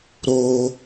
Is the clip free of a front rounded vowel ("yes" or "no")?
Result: yes